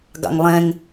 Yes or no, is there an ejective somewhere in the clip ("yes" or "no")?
no